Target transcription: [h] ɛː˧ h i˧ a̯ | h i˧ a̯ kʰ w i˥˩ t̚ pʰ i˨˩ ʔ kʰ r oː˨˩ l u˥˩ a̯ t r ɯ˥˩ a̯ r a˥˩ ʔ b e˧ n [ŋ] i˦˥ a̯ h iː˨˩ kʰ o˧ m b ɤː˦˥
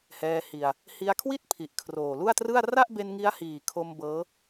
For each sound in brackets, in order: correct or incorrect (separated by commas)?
correct, correct